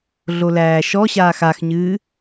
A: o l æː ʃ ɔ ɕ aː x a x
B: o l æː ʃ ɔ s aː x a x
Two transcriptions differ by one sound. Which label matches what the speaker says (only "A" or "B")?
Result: A